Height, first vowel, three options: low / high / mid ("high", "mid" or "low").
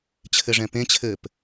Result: mid